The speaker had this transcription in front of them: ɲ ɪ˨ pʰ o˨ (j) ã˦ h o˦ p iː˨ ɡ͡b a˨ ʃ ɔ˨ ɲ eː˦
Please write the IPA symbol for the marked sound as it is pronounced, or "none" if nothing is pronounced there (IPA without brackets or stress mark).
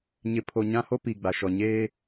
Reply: ɲ